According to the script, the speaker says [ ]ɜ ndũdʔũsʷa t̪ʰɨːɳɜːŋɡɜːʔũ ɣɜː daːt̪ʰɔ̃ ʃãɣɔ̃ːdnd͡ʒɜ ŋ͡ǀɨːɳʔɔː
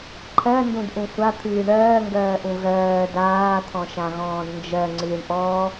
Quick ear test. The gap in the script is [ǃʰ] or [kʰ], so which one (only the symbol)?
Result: ǃʰ